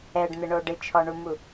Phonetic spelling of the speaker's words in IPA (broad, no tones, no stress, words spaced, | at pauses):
ɛɖn̪ɪɳo ɖɪt͡ʃʰɔɳumu